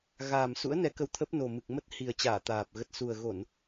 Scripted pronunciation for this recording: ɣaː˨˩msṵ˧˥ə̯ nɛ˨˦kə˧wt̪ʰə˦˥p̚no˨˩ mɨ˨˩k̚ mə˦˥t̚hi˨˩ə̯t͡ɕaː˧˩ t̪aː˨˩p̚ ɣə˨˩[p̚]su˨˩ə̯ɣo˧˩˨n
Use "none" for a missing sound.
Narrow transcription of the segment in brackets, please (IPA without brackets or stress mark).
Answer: t̚